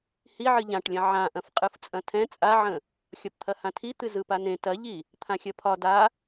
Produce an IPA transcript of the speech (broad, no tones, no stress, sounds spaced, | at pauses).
h i ʕ ɨ ʎ ã ʈ lʲ ɐ̃ ʕ ã ʔ ɐ̃ f qʼ ɯ f t͡sʼ ɐ̃ tʰ ɛ̃ t͡sʼ a ʕ ə̃ | xʲ ɒ p t̪ʰ ɐ h ã tʰ i t̪ ɨ z ɯ p a n ẽ t ɐ ʎ i | t̪ʰ ã xʲ ɐ pʰ ɒ d a